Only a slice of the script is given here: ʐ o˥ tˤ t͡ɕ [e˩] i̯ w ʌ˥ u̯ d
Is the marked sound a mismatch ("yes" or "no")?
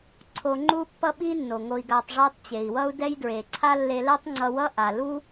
no